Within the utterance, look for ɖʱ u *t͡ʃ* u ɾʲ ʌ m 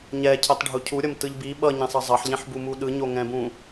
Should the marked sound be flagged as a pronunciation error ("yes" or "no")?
yes